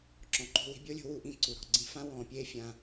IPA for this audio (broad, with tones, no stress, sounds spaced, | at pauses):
ǁ ɔ̃˨ ǃ o̤˧ w i̤˧ bʲ o˦ lʲ o̤˧ w u˧ ʔ ĩ˧ ǀ u˨ ɾ ɔ̤˨ ɡ͡ǀ ĩ˧ f ã˦ w ɔ̃ː˨ pʲ eː˦ fʲ ãː˧